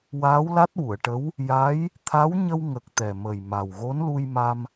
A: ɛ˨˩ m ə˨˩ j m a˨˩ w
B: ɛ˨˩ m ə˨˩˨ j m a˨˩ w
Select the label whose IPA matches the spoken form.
A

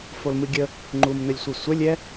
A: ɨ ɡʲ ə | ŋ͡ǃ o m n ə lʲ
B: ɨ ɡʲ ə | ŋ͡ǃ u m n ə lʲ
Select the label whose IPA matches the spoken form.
B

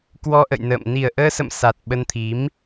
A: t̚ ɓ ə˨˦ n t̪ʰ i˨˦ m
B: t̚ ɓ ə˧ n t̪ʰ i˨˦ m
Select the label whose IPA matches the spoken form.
B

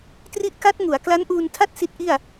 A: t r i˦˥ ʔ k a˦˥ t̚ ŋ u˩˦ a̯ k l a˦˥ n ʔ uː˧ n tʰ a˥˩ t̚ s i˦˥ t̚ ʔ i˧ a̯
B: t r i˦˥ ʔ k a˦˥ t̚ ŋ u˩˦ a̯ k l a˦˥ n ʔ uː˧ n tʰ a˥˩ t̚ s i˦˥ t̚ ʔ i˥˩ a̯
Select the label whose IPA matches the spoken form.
B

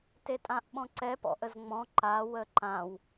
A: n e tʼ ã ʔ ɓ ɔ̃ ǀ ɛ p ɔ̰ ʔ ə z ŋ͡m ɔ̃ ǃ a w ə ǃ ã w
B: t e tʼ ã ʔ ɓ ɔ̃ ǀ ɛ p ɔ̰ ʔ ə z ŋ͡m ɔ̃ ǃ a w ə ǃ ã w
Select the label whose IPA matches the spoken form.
B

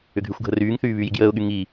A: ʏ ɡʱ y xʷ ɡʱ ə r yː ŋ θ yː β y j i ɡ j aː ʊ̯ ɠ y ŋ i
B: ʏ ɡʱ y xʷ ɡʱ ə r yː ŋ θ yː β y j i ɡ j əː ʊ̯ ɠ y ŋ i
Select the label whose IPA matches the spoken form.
B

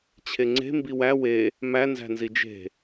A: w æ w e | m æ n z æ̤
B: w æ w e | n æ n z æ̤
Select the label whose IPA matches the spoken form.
A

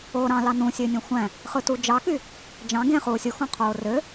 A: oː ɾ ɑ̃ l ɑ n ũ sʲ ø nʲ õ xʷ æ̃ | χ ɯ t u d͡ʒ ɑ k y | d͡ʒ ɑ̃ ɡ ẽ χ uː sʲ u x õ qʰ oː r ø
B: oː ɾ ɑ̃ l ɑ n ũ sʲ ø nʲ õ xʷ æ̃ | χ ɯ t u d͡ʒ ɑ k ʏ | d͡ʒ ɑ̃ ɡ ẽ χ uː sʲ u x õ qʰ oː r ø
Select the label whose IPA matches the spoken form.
A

